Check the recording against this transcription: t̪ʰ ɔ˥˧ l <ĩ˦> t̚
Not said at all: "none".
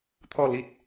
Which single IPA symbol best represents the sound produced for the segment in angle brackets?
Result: i˦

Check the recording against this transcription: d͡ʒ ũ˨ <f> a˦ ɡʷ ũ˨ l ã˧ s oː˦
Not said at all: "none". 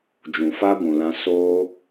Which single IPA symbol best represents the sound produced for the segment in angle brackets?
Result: f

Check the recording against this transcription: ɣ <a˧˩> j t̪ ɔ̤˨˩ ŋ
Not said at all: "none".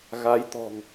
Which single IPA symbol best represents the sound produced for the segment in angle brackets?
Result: a˨˦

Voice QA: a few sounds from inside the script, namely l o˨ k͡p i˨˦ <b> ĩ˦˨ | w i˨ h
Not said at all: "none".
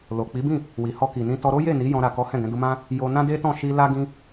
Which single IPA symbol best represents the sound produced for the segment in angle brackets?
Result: b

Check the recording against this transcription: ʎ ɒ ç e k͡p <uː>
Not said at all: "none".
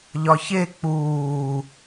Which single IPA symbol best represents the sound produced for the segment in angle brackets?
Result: uː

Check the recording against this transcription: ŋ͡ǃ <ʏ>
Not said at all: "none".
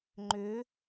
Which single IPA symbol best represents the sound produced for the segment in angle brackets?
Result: ʏ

